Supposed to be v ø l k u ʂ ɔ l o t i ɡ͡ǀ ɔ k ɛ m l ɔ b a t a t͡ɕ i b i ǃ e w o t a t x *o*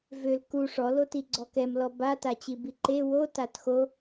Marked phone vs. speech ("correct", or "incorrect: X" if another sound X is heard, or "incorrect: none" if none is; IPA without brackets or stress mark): correct